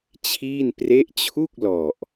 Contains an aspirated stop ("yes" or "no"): yes